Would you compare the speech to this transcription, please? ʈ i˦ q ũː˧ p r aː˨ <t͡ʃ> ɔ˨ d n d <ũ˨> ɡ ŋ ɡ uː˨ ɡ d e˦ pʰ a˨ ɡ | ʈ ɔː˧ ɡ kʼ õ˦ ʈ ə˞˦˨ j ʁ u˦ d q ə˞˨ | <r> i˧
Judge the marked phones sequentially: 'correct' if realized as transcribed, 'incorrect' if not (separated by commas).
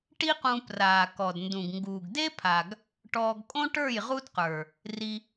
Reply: incorrect, correct, correct